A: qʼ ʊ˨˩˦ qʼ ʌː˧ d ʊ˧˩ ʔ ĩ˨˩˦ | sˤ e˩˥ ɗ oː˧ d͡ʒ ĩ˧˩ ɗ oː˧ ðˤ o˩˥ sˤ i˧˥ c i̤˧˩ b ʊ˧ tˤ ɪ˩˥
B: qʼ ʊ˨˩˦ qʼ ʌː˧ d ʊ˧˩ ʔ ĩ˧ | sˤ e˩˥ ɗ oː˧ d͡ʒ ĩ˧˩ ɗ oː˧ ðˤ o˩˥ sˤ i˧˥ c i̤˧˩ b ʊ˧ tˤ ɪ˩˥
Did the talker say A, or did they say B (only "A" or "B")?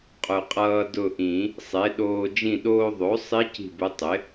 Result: A